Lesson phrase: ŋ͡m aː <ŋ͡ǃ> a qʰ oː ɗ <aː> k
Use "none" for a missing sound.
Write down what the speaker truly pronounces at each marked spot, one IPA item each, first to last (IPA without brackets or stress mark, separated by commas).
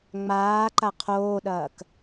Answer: ǃ, ɐː